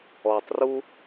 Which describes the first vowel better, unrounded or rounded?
rounded